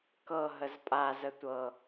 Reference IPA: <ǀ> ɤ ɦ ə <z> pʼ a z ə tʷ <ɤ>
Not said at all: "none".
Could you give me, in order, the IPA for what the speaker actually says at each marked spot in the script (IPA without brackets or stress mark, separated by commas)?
k, z, ɤ